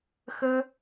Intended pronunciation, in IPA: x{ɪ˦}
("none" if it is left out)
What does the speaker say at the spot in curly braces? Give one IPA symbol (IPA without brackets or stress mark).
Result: ə˦